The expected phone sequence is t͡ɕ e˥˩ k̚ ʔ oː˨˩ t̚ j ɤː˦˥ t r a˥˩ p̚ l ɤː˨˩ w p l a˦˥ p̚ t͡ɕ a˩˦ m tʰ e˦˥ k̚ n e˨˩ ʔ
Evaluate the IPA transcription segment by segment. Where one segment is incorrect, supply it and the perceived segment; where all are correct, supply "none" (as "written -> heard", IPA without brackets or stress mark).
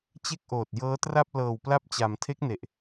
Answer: none